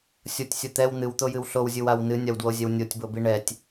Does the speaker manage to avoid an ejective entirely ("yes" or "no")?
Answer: yes